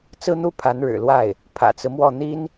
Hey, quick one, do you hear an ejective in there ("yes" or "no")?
no